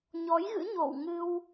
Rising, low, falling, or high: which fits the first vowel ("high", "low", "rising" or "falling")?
rising